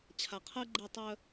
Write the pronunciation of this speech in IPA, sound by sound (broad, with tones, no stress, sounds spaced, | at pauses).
t͡ɕʰ a˨ qʰ əː˦ ɡ͡ǃ e˦˨ tˤ œ˦